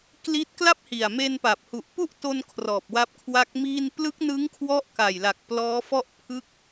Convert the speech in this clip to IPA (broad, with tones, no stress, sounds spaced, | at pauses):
k l i˦˥ t̚ k l a˥˩ p̚ h i˨˩ a̯ m e˧ n p a˨˩ p̚ h u˨˩ ʔ p u˥˩ ʔ t o˧ n kʰ r ɔː˨˩ p̚ w a˦˥ p̚ kʰ w a˦˥ k̚ m iː˥˩ n p l ɯ˦˥ k̚ n ɯ˦˥ ŋ kʰ w ɔ˦˥ ʔ k a˨˩ j l a˨˩ k̚ p l ɔː˦˥ f ɔ˥˩ ʔ pʰ ɯ˥˩ k̚